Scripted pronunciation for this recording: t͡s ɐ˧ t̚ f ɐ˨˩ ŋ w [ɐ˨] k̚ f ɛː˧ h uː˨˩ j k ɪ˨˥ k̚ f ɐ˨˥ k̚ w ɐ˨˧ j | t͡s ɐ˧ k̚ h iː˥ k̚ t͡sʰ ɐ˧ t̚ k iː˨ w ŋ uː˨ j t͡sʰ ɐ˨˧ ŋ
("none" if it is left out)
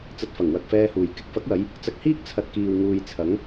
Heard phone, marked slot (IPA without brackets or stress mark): ɐ˨